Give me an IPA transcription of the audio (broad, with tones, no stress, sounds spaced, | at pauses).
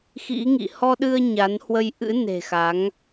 x ḭ˧˥ ŋ ḭ˧˨ h ɔ˧ ɗ ɨ˧ ə̯ ɲ a˨˦ n h w ə˧ j ʔ ɨ̰˧˥ n e̤˨˩ x a˨˦ ŋ